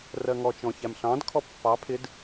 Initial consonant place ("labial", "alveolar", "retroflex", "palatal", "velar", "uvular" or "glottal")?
alveolar